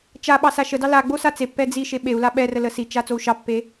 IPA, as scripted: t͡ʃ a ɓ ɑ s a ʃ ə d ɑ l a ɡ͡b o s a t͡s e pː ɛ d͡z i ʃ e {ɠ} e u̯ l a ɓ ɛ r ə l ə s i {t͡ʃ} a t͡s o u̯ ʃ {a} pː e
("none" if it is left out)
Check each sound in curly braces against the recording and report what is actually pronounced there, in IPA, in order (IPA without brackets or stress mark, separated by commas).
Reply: ɓ, t͡ʃ, ɑ